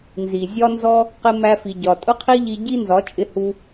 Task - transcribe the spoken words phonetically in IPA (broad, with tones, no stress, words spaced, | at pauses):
nzi˨ zʲɒ˦nzɔ˦ | qɪ˧mæ˧fi˨ɟɒ˨ tʼʊ˦qʰi˦ʎi˧ ɟi˦nzɒ˨˦t͡ʃʼɪ˧hu˧